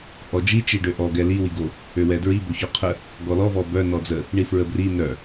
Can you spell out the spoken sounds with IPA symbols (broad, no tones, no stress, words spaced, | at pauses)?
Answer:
ʔɔd͡ʒi t͡ʃiɖøʔɔ ɡɛli wiɡo | øwɛdɹi boçɔqʰə | ɡɔlɔ vɔbœ nɔd͡zə | ɳifɹəbri nœ